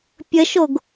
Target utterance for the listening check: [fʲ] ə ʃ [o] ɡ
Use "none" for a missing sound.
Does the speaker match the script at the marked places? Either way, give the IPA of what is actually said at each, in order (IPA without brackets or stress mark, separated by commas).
pʲ, o